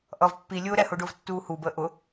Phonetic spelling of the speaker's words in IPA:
ʔ ʌ v pː i lʲ ʊː ɾ ɛ h ʊː ɖ ʊː v tː uː h u b əː ʔ ʊ

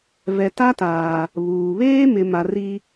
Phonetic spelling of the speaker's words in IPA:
v ɛ˨ t a˦ t aː˨ | β uː˨ β eː˦ m ɪ˨ m a˨ r i˦

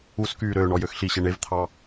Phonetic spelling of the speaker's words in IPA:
u s k yː ɾ øː ɳ ɔ j ø x ɬ i ɕ e ɳ e v t̪ʰ ɑ

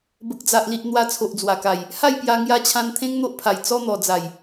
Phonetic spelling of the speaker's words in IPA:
b ə˨ k̚ d͡z a˨ ʔ l i˨ ʔ n̪ w a˧ t͡sʰ o˨ ʔ d͡z w a˨˩ k a˨˩ j | h a˥˧ j p j a˧ ŋ j a˧ t͡ɕʰ ã˧ n t̪ʰ ẽ˦ ŋ n̪ o˦ ʔ pʰ a˨˩ j t͡s ɔ˧ n̪ ɔ˨˩ d͡z a˨˩ j

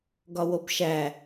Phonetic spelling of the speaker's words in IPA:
ɡ ɒ w o b ʃ æ

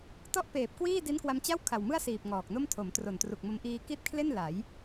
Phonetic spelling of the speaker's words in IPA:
t ɔ˥˩ ʔ p eː˨˩ p̚ k w iː˥˩ d i˦˥ n k w a˧ m t͡ɕ a˥˩ w kʰ a˨˩ w m ɯ˥˩ a̯ s iː˨˩ p̚ ŋ ɔː˨˩ k̚ n o˥˩ m tʰ o˩˦ m t r o˨˩ n t r u˨˩ k̚ m o˧ m ʔ iː˧ k i˥˩ t̚ kʰ l e˥˩ n l a˩˦ j

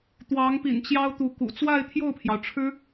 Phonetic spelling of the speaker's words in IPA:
t̪ w ɑ˧˥ ŋ p ḭ˨˩ n t͡ɕ j ɑ˥ ʊ̯ t̪ u˧˥ k ṵ˨˩ t͡s w a˥˧ ɪ̯ t̪ʰ j o˥˩ ʊ̯ pʰ j ɑ˩ ʊ̯ ʈ͡ʂʰ ɻ̩˥

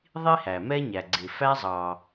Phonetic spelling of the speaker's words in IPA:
ðˤ i˥ h æ˩ m ɛ˥ ɲ æ˩ ɡ͡ǀ ɪ˩ f æ˧ zˤ ɑ˩

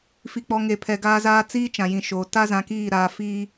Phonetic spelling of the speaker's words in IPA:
f i˨ k͡p ɔ˨ ŋ e˨ pʰ ɛ˨ ɡ aː˦ z aː˦ t͡s iː˦ t͡ʃ ã˨ j ĩ˨ ʃ oː˨ t a˦ z ã˨ k iː˦˨ ɾ aː˨ f iː˦

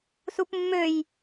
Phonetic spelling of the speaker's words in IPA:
s u p mː ø j

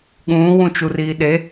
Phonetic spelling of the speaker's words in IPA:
ɠ ũː w ũ t͡ʃ u r iː ɗ e

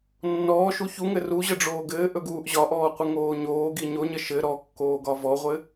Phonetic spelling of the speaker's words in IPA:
nː ɔː ʃ u ç u ŋ ɘ r u ʑ ə ɖ͡ʐ oː ɡ ɘː ʔ ɵ ɡ uː ʔ ʑ ɒ ʔ ɔː qʷ ɘ ŋ oː ɲ oː ɡ i ɲ o ɲ ə ʃ ɘ ɾ ɔ kː oː ɡ ɒ v ɔ ʁʷ ɘ

